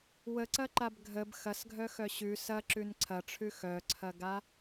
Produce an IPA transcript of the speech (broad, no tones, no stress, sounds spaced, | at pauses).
w ə ǀ ɐ ǃ a b ɡʱ ə b x ɐ s ɡʱ œ x œ ɕ ʉ s ɐ ǁ ʉ n ǀʰ ɐ ʈ͡ʂʰ ʉ x œ ǀʰ ɐ ɡ a